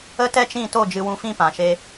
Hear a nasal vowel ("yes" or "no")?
yes